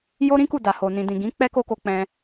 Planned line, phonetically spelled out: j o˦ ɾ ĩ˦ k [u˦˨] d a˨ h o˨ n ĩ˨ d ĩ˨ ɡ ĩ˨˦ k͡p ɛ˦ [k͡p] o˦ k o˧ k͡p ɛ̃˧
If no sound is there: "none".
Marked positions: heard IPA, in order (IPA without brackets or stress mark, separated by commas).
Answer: u˦˨, k